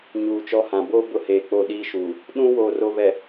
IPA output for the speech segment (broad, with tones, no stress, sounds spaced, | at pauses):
ɲ uː˨ t͡ʃ ɔ˦ h ã˨ b oː˦ b ʊ˦ h eː˨ k͡p o˦˨ ɗ iː˦ ʃ uː˨ | ɗ ũ˦ w oː˨ r o˨ β ɛ˨